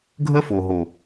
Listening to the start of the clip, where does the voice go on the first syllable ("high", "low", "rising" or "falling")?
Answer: high